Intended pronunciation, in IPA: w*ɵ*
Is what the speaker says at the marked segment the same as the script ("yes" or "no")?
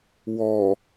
no